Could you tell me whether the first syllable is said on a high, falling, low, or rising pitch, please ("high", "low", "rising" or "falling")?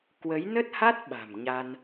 rising